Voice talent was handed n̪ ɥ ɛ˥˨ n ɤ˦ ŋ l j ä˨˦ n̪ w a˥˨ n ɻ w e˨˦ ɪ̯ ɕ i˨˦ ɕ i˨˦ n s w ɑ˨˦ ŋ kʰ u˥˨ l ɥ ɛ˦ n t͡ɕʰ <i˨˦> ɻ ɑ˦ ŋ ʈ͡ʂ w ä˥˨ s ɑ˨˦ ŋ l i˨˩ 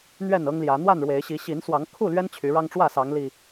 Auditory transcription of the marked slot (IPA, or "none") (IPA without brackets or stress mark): y˨˦